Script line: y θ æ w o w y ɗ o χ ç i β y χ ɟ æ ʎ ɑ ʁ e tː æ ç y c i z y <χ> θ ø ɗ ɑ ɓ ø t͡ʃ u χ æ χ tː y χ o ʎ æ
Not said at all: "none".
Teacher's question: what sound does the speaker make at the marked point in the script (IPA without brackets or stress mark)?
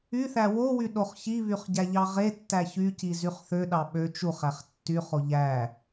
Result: χ